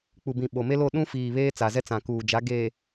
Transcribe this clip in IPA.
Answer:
k͡p u˨ b ĩ˨ ɓ o˨ m e˦ l o˦˨ ɗ ũ˦ f iː˨ β eː˦ t͡s a˨ z ɛ˦ t͡s ã˨ k uː˨ d͡ʒ a˨˦ ɡ eː˨

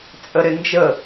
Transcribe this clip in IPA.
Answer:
t͡sʼ ə ɾ ɪ n d͡ʒ ə

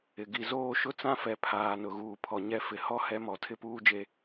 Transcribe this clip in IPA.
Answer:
ɪ˨ ɡ i˨ z oː˦˨ ʃ ʊ˦ t͡s ã˦ f ɛ˨ pʰ aː˨ n ʊ˨ ɣ uː˨ pʰ ɔ˨ ɲ ɛ˦ f ɪ˨ h ɔ˦ h ɛ˦ m ɔ˨ tʰ ɪ˦ p uː˦ d͡ʒ e˦

